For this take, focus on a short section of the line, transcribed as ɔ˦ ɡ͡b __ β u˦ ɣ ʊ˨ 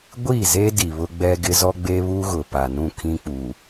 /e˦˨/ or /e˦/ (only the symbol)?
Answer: e˦